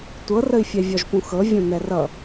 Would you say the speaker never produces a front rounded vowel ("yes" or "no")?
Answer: yes